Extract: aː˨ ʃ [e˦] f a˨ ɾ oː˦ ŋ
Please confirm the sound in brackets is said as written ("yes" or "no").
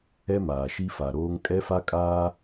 no